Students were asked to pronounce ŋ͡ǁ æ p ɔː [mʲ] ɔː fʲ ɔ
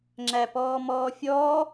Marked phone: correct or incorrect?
incorrect